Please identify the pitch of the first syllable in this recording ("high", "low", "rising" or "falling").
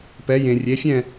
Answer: rising